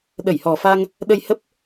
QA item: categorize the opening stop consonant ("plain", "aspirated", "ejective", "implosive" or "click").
implosive